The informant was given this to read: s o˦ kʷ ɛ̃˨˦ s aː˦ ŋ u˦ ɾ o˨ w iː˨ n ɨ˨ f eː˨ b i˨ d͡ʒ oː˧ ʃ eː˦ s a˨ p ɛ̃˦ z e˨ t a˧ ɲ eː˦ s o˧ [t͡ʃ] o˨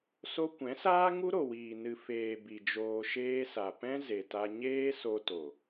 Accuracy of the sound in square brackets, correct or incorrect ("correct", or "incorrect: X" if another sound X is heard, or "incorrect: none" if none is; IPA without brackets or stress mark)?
incorrect: t